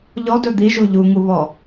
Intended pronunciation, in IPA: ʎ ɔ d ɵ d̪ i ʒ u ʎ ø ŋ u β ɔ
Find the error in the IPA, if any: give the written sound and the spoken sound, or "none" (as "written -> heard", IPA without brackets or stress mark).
ø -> u